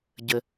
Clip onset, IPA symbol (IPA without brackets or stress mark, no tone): ɟ